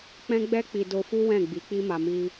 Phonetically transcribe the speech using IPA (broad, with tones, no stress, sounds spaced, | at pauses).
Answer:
k͡p ɛ̃˦ ɡ͡b ɛ˦ k͡p i˧ d o˧ f u˦ w ɛ̃˦˨ ɡ͡b i˨˦ k͡p i˦ m a˧ m i˦